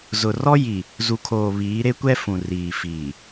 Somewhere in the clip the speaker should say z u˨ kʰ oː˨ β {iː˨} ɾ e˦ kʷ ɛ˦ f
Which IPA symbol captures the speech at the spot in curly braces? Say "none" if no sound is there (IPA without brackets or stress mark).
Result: iː˨˦